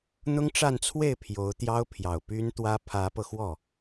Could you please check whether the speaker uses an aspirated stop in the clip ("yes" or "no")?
yes